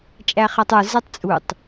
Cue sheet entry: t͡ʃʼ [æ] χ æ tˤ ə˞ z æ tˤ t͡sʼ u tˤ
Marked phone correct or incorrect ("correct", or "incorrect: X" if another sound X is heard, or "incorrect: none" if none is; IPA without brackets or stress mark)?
correct